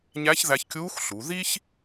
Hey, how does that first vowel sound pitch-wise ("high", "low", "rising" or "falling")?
rising